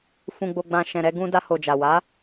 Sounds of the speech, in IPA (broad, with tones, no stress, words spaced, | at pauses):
fũ˨ɡ͡bo˨ɡ͡bã˨ ʃɛ̃˨ɾɛ˧ ɡũ˧ da˧ho˨d͡ʒa˨ wa˨˦